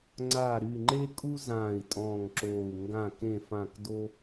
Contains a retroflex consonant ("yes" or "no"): no